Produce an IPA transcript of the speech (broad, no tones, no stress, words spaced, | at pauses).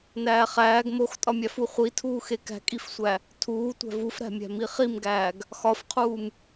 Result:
næːχæːɡ moxtʼɒmʲæfu χʷitʰuːxe kæ̤kʼifsʷæ | tʰuː tʷæ̤vufɾæ̤mʲæ̤ miχimɡæːɡ | xɒfqʰuːm